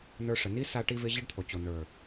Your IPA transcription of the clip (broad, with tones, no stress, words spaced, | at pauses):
nə˞˧ʂə˨ni˦ sa˧ʈi˧vɪ˧ ʑɪ˦ɖt̪ʰo˨ t͡ɕo˨nə˞˨